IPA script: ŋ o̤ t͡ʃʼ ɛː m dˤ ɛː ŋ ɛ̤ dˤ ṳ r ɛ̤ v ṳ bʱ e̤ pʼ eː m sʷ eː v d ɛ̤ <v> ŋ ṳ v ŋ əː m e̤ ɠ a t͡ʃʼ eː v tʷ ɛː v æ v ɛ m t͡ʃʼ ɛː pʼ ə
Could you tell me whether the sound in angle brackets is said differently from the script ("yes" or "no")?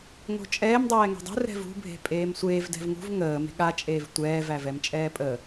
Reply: no